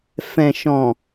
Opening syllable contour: low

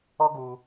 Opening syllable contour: high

